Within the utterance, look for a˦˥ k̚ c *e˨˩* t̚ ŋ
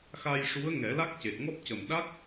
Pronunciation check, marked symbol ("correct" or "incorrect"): correct